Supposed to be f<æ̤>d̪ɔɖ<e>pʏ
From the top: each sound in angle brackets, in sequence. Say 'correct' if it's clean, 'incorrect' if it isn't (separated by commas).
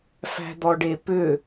correct, correct